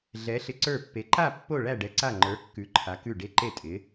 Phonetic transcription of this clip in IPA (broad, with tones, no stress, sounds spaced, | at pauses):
ɮ ɛ˧˥ ɬ ɪ˧˥ ǀ ə˞˥˧ pː e˧˥ ǃ a˥˧ pː o˥˧ ɭ æ˥˧ ɖ ɛ˧˥ ǀ a˥˧ ŋ͡ǃ ə˞˧˥ kː ʉ˧˥ ǃʰ a˧˥ k ʉ˥˧ ɖ e˥˧ ǃ e˥˧ tʼ ɪ˧˥